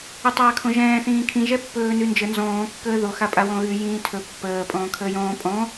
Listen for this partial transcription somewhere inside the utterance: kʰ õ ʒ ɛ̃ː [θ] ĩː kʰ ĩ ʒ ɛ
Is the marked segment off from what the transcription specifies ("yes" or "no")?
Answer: no